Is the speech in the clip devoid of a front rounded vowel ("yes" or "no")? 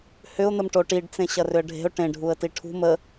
no